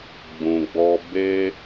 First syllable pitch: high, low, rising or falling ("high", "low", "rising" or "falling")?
low